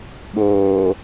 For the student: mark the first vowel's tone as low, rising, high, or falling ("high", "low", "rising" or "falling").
low